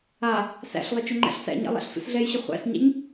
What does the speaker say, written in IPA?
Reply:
a | s æ̰ ɬ lˠ ə t͡ʃ ɵ ŋ͡ǃ æ̰ ɬ s æ̰ ɲ a̰ lˠ a̰ ɬ sʷ ḭ s ɮ ɛ j ɕ ə χʷ æ̰ s ɲ æ̰ ɲ

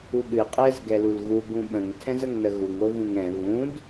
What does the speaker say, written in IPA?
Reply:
u ɠ ɨ qʼ ɛ z ɡ ɛ l u l ɣ u ɡ ũ ɓ ə̃ ŋ tʰ ɛ̃ z ə ŋ n ə ɣ u ŋ o v ũ ŋ ɛ̃ β ũ d

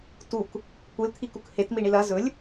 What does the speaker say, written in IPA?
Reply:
t u k | kʷ ɨ l t̪ʰ i k u k h e t m i ɳ i l ɐ z ɵ lʲ

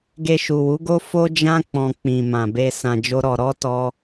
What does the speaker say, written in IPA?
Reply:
ɡ e˧ ʃ u˨ w u˨˦ ɡ o˦ f o˦ d͡ʒ ã˦ k͡p ɔ̃˧ k͡p ĩ˨ m ã˨ b e˧ s ã˧ d͡ʒ o˦ ɾ ɔ˧ ɾ ɔ˦ t ɔ˦

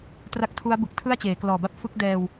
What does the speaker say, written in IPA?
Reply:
t r a˥˩ k̚ tʰ u˦˥ a̯ b ɯ˨˩ k̚ tʰ ɯ˥˩ a̯ t͡ɕ eː˩˦ k l ɔː˨˩ b a˥˩ p̚ f ɯ˦˥ k̚ d ɛː˧ w

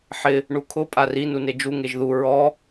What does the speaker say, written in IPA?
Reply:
ħ ɪ | ɳ u kʰ ʊ pʼ a r i n u n e d͡ʒ u ŋ e ʒ ð u ɹ ɔ

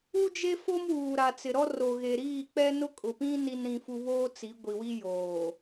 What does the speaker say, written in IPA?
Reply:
u˦ d͡ʒ e˦ f o˦ m w uː˨ ɾ a˨ t͡s ɪ˨ ɾ ɔ˦ r o˨ ɣ e˨ ɾ iː˦˨ k͡p ɛ˦ n ʊ˦ kʼ ʊ˨ p ĩ˦ n i˨ n ɾ ĩ˨ f u˨ β oː˦ t͡s i˨˦ ɡʷ i˨ w i˦ j oː˨

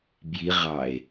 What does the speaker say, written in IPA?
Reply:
b j i ʁ ɑ e̯

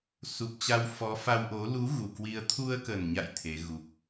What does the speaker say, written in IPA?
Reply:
s u˨˩ p̚ t͡ɕ a˧ w f ɔ˨˦ f a˧ w ʔ o˨˦ l u˨˦ ɣ u˨˩ k w i˧ ə̯ t̪ʰ u˧ ə̯ k ə˨˩ n ɲ a̰˧˨ j t̪ʰ e˨˦ ɣ u˨˩ k̚

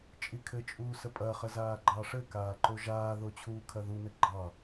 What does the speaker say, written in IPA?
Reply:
t͡ʃʼ i kʰ ɘ t͡ʃʼ uː s ə pʼ ɐ χ ə z aː ɡ͡ǃ ɑ ʂ ɘ k aː ǃ o ʒ aː ð o t͡ɕʰ uː kʰ ɐ ð u n ɘ ɡ͡ǃ ɑ

